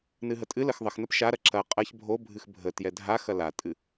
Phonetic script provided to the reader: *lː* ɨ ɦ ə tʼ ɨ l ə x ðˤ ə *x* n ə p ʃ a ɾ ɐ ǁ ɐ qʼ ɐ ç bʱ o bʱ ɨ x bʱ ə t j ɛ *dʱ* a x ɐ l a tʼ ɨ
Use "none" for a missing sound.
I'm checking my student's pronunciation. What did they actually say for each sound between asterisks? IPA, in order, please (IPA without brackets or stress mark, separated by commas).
n, x, dʱ